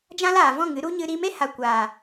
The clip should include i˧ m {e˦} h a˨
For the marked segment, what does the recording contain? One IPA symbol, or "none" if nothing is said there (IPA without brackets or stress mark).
e˦